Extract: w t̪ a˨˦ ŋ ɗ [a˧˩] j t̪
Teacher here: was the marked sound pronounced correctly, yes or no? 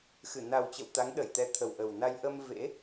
no